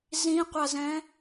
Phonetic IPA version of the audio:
z ĩ qʷ a z ɛ̃

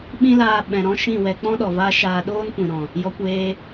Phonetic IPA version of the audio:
ɓ ĩ˦ l aː˧ ɓ ɛ̃˨ ɾ ɔ̃˦ ʃ ĩ˦˨ w ɛ˧ k͡p ɔ̃˦ ɗ ɔ˨ v aː˦ ʃ aː˧ ɗ oː˦ n kʷ ĩ˨ ɾ ɔ̃˨ | j ɔ˧ kʷ eː˧

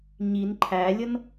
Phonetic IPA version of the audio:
ɲ i n ǃʰ æ lʲ ʌ n

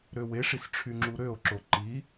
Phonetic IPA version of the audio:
ɾ ø w e ʂ i s ʈ͡ʂʰ y ŋ͡ǁ u ɾ ø o̯ ǁ o ǃ i

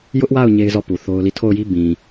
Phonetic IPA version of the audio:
j ʊ˦ ʔ w a˦˨ ʊ̯ ɲ e˦ ɪ̯ z ɔ˦˨ p u˨ θ o˦ ʊ̯ l i˦˨ tʰ o˦˨ ʊ̯ j i˦ b ĩ˨

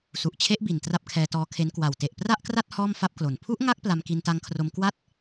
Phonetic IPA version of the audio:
s u˨˩ ʔ t͡ɕʰ e˦˥ ʔ b i˨˩ n t r a˥˩ p̚ kʰ ɛː˧ t ɔː˦˥ kʰ e˦˥ n k w a˨˩ w t e˨˩ ʔ p r a˥˩ ʔ k r a˥˩ t̚ h ɔː˥˩ m f a˥˩ p̚ k l o˨˩ n pʰ u˦˥ ʔ ŋ a˦˥ k̚ p l a˧ m k i˧ n t a˧ ŋ kʰ r o˧ m k w a˦˥ t̚

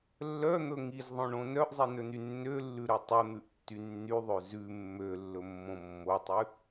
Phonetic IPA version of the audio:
lː œ n̪ ɵ ŋ i z ðˤ õ ɳ õ n œ ʔ zˤ i n ɵ n y nː ø lː ʉ ɾ œ tˤ ɵ n̪ ʉ ʔ tː y nː y ðˤ ø z ʉ mː ø lː ɵ mː õ mː o tˤ ʉ

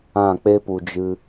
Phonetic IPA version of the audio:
ã˦˨ k͡p e˦ p u˨ d͡ʒ ɨ˧

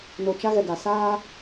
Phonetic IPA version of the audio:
n o˨ t͡ʃ a˦ ɣ ɛ˨ ɡ a˨ s aː˦

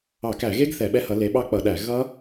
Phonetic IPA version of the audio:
ɑ˧˩˧ k æ˧˩˧ ɣ e˦˥ ɡ θ ɛ˧˩˧ ɓ ɛ˦˥ h ʌ˨˦ l e˨˦ ɓ ɑ˦˥ k͡p ʌ˧˩˧ ɗ æ˧˩˧ ɣ ʌ˦˥

